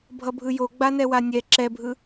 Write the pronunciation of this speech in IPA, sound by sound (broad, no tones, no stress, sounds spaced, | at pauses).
bʱ ʌ bʱ ɯ j o ɡ͡b a n ɛ w a nʲ ɛ ǁ ɛ bʱ ɯ